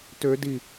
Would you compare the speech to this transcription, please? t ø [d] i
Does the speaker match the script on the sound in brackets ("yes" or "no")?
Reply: yes